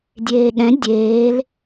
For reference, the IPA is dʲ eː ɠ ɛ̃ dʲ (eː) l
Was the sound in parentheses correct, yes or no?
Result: yes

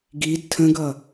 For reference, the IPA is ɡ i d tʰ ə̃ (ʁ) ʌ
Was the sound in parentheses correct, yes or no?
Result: no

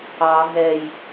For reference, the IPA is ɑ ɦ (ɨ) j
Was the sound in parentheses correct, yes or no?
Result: no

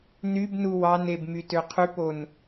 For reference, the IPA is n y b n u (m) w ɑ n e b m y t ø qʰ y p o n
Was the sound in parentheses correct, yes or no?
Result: no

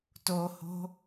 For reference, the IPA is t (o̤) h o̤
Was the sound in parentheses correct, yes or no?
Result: no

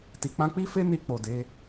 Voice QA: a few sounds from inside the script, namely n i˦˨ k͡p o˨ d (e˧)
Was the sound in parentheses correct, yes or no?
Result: no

